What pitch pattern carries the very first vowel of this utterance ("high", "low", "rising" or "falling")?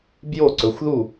falling